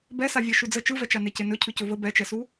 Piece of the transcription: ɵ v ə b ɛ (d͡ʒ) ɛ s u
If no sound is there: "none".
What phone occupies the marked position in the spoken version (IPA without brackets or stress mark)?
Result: t͡ʃ